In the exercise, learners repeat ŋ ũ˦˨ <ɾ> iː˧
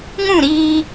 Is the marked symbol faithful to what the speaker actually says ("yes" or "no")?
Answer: yes